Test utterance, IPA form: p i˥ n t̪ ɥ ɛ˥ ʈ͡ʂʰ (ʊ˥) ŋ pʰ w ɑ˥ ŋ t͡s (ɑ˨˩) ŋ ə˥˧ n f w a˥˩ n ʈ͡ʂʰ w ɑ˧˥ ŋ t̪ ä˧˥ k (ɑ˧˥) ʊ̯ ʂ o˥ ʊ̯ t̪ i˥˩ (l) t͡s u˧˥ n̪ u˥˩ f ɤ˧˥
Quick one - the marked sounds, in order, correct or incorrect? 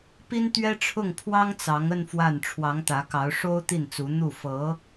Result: incorrect: ʊ˥˩, incorrect: ɑ˧˥, correct, incorrect: n

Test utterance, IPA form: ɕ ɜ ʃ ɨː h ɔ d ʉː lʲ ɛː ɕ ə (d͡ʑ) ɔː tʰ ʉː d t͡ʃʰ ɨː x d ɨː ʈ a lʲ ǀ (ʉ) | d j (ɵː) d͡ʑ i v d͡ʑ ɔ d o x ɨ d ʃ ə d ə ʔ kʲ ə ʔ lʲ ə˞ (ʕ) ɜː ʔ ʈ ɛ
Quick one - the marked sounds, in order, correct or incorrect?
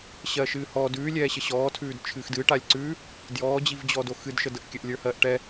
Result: incorrect: ɕ, correct, incorrect: ɔː, incorrect: h

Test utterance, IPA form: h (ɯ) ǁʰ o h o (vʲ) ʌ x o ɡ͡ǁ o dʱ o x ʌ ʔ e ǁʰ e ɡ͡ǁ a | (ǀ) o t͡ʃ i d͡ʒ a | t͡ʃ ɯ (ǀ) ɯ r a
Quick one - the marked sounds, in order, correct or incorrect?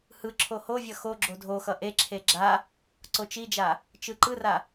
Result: correct, correct, correct, incorrect: ǃ

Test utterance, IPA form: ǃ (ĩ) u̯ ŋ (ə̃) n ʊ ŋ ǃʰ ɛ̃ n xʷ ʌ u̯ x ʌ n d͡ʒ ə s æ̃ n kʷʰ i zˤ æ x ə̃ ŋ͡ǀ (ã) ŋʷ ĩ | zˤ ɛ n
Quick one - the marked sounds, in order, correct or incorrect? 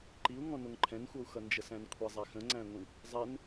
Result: incorrect: i, incorrect: ɔ̃, incorrect: æ̃

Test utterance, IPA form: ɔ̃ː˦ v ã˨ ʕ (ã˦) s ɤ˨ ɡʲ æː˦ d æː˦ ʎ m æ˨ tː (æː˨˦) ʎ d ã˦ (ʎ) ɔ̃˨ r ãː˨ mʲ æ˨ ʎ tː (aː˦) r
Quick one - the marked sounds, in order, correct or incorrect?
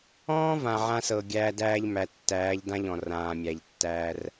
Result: correct, correct, correct, incorrect: æː˦

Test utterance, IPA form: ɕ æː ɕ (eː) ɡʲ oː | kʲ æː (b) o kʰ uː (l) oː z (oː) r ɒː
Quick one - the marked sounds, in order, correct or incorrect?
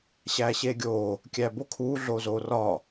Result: correct, correct, incorrect: ɮ, correct

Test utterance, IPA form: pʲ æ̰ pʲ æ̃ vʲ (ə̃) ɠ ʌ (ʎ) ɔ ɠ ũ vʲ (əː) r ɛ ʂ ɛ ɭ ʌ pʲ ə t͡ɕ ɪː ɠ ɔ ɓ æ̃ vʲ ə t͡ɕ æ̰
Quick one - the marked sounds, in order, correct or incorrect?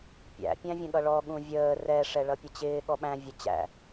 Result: correct, incorrect: ɭ, correct

